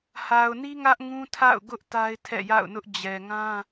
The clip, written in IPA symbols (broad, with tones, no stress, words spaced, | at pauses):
ha˨ʊ̯ni˦ ŋä˦ʔ ŋũ˦tʰa̰˦˨ʊ̯ ɡʊ˦ʔ ta˦ɪ̯tʰɛ̰˦˨ ja̰˦˨ʊ̯ nʊ˦ʔ d͡ʑɛ˨ŋã˦